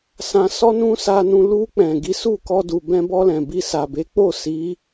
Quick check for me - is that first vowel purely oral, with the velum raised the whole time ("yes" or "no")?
no